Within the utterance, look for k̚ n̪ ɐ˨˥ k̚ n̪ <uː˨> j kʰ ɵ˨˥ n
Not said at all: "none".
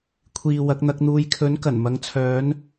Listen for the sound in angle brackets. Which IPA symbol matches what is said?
uː˧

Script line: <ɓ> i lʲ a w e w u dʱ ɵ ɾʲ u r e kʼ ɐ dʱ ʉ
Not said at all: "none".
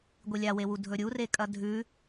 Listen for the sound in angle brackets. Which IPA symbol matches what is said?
ɡʷ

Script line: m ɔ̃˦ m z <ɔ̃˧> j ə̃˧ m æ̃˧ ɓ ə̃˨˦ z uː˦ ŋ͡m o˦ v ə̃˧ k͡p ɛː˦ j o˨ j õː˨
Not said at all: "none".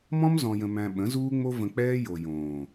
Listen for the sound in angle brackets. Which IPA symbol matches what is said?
ɔ̃˧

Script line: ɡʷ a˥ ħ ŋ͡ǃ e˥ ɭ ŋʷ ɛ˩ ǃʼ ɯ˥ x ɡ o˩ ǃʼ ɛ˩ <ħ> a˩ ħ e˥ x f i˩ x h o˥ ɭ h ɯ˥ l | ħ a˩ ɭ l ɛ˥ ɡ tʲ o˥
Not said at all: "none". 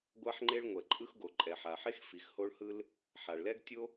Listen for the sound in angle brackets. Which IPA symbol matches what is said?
ħ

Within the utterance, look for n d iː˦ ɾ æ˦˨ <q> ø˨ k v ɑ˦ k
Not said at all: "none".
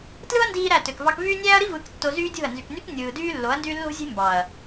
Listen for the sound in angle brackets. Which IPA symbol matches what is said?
t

